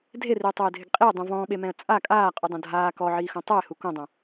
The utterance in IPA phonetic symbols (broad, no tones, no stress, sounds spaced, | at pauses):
dʱ e r iː tˤ eː dʱ ɪ ɡ qʼ i ə̯ dˤ ũ v ɔ̃ː ɓ e m ɛ̃ ə̯ t͡sʼ a kʼ aː qʼ u dˤ õ dʱ aː k ɔ ʕ iː x õ tˤ ɛ ɪ̯ h u k õ dˤ õ